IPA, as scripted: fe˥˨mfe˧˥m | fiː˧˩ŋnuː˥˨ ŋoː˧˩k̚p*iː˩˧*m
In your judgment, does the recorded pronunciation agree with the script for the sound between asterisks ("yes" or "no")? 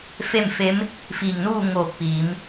yes